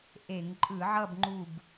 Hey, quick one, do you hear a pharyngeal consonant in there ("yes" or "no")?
yes